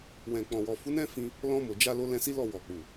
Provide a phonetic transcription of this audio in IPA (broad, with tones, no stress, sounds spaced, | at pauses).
w ɛ̃˨ k͡p ɔ̃˨ w ɔ˨ f u˨˦ n ɛ̃˦ f ĩ˧ | l ɔ̃˧ m o˨ d͡ʒ a˧ l o˧ l ɛ̃˧ s i˦ l ɔ˦˨ w ɔ˨ k͡p u˨